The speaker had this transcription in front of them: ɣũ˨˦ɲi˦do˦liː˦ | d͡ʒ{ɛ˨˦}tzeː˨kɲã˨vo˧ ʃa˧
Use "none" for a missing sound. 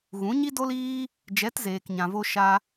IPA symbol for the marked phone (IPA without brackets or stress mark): ɛ˨˦